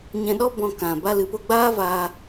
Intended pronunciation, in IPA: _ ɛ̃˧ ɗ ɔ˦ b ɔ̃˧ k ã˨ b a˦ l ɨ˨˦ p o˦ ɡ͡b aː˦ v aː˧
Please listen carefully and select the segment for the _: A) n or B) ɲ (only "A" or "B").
B